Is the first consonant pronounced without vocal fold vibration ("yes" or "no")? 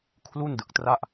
yes